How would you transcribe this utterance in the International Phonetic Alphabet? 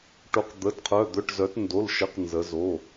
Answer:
ʈ o˩˧ q d̪ ə˩˧˩ d qʰ œ˩˧˩ d̪ œ˩˧˩ ʈ z œ˩˧ t n d o˩˧˩ l ʃ ə˩˧˩ q n z ə˩˧ z o˩˧˩

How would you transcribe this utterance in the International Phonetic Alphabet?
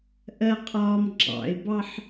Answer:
ʔ ɜ qʼ ɒː m ɡ͡ǁ ɑ̰ ɪ̯ b ɑ ħ

